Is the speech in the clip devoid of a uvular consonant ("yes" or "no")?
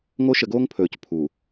yes